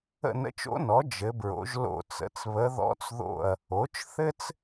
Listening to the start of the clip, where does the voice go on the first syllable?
falling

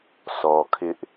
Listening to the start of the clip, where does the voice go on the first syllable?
low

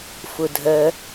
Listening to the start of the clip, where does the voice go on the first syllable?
low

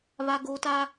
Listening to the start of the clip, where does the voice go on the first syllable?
high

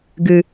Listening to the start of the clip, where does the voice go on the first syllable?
low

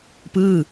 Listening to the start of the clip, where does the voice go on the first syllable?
falling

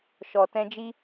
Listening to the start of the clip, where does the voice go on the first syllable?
low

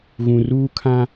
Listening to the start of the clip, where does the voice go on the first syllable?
low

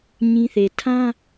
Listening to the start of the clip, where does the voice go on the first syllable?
high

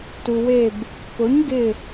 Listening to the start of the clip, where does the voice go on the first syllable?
low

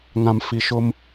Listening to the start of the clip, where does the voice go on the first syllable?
low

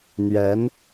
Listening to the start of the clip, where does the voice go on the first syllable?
rising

